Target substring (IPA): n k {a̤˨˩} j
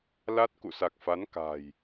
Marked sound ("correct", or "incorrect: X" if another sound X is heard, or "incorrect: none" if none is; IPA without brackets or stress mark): correct